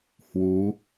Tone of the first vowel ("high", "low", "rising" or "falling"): rising